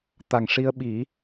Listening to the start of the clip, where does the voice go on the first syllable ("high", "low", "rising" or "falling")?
low